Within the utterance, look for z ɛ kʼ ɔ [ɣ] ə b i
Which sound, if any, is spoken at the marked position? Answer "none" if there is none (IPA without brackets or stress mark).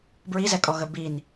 ɣ